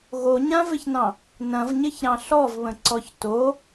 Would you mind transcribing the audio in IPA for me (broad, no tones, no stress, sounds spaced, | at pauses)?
ɣ o ɲ ã v ɪ ç n ɑ̃ | n ɐ̃ v ɲ ɪ ç ɾ ɑ̃ ɬ ɔ v β ə̃ ǀ ɔ ç t o